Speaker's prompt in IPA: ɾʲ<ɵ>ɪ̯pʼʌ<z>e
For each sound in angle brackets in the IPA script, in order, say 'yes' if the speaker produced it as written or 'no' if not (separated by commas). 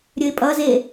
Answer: yes, yes